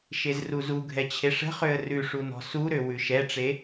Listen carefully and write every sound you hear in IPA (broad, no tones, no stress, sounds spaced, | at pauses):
ʃ e z r u z u ɡʱ ɛ t͡ɕʰ e ʂ ə̤ χ ø ə̯ r ʉ ʂ u n ɔ̤ s u ɾ ø w ʉ ʃ ɛ ʈ͡ʂ e